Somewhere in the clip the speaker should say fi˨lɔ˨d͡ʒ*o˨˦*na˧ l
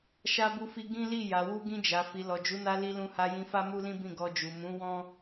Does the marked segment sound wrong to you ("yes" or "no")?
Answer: yes